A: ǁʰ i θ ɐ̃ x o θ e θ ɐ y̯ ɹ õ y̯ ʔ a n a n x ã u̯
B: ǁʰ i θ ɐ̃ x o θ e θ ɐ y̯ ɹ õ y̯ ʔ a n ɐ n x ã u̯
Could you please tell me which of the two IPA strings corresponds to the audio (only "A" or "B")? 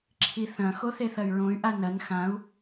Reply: B